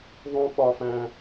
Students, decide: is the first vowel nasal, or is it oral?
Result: nasal